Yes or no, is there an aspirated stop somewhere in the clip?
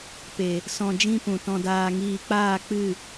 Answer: no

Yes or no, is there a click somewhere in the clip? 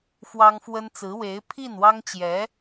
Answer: no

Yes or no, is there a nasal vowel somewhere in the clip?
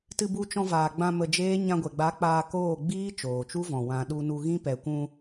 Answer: yes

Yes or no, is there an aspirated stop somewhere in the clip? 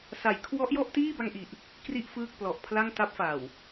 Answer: yes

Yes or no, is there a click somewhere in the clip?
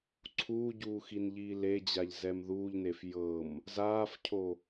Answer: yes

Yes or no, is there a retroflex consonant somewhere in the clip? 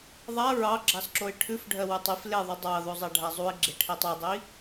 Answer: yes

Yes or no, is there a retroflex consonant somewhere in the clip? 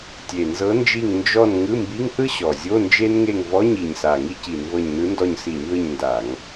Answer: no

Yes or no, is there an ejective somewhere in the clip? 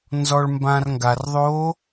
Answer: no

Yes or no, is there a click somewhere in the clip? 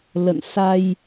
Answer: no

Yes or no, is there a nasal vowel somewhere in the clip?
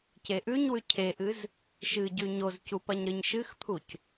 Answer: no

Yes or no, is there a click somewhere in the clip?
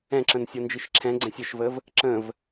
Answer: yes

